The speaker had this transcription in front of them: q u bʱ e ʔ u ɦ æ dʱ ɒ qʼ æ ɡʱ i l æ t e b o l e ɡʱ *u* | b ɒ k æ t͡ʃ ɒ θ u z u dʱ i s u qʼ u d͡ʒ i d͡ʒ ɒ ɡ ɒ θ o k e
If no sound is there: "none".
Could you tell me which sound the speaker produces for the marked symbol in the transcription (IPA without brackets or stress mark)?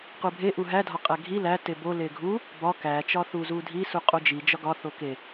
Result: u